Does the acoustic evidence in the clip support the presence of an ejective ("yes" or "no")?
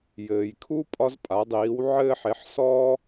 yes